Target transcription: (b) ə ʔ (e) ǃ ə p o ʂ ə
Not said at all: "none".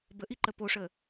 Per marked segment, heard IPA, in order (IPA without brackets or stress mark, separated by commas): b, i